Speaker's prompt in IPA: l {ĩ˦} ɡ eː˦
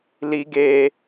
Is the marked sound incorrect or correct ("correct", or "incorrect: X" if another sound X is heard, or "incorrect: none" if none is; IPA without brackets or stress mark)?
incorrect: i˦